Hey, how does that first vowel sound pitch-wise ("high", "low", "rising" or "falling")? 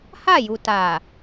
falling